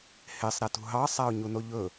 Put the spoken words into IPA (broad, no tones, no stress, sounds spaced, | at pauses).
h e sˤ ɾ æ t ṳ ɦ ɑ sˤ æ ʊ̯ ɲ u n o ʎ ɵ